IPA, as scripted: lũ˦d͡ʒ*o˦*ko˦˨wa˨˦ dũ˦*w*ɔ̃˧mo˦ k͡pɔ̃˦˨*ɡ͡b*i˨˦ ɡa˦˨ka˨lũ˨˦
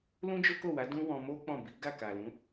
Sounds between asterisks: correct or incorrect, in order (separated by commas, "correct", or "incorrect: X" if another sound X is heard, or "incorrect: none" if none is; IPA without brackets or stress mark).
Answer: correct, correct, incorrect: b